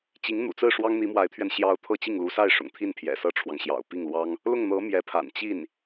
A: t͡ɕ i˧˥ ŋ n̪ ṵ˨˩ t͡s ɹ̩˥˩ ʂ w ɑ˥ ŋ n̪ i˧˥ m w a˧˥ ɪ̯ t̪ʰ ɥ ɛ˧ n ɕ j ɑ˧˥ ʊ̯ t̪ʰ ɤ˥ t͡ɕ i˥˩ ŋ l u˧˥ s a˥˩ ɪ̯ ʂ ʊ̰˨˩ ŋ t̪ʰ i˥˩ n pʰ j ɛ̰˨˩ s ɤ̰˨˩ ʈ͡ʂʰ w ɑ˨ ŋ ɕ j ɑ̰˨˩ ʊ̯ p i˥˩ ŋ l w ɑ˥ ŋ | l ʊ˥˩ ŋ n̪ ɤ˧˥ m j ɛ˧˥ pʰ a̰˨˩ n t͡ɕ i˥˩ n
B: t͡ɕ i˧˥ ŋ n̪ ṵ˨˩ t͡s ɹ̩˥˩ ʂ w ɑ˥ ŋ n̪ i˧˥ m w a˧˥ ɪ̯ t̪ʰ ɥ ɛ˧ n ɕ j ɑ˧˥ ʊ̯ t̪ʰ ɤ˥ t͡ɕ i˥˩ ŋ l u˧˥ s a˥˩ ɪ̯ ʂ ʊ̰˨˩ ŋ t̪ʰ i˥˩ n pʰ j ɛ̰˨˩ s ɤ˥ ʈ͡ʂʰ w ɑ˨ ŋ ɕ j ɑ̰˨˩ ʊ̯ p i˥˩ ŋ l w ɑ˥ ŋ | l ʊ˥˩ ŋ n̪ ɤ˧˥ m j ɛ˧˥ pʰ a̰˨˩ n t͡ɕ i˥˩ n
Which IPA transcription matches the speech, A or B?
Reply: B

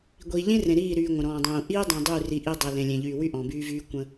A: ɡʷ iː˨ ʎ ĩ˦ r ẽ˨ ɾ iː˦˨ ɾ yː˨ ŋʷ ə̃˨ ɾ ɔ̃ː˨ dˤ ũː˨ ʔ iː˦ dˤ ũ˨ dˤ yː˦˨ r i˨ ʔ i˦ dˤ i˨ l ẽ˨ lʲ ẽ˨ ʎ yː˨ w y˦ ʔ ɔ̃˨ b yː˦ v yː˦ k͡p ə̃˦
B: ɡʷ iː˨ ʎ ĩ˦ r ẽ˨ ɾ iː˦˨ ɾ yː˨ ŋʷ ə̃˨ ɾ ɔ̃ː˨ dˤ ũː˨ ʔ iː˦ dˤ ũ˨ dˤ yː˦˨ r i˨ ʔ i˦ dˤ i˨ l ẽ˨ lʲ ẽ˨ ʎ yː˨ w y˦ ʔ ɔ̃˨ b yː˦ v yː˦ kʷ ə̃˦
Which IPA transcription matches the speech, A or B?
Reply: B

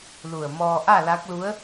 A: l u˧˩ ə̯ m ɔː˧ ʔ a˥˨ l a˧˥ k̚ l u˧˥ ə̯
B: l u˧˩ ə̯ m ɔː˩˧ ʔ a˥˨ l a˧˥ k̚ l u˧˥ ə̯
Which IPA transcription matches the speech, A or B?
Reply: A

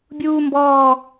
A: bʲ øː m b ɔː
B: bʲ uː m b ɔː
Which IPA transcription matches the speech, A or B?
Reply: B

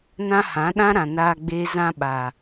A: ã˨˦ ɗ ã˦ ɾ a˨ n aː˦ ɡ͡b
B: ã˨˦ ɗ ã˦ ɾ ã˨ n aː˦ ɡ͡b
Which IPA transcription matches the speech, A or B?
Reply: B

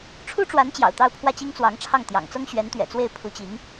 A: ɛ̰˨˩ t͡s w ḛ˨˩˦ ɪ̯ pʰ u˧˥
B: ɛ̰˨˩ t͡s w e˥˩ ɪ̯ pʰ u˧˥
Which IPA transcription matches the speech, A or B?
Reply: B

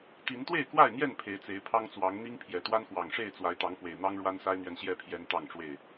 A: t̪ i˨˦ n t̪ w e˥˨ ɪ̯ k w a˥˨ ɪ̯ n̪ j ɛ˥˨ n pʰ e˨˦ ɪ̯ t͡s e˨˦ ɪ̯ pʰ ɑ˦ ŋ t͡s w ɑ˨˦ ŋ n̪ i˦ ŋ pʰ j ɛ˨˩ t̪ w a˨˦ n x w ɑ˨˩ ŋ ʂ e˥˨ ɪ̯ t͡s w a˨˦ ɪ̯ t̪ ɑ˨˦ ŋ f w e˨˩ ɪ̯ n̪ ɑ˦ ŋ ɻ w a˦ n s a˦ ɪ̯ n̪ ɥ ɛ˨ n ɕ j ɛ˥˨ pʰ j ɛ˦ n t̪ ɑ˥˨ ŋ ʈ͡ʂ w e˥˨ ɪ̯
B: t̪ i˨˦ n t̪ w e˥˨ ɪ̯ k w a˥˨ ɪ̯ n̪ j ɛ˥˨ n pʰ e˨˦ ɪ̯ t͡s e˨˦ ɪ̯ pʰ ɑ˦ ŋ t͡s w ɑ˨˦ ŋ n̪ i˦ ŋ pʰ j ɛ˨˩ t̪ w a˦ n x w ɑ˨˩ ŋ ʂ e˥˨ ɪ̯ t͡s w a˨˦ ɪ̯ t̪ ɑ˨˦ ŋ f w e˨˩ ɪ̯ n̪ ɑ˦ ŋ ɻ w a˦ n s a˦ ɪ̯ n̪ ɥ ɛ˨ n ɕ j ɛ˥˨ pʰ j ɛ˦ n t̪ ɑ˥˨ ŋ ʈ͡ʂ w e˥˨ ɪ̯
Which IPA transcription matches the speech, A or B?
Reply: B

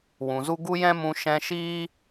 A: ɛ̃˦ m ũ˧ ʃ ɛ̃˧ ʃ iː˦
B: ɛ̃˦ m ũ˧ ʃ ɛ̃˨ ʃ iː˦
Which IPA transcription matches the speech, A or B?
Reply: A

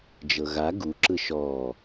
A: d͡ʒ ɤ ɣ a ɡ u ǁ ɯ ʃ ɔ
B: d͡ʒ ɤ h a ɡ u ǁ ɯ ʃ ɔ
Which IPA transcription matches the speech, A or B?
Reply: A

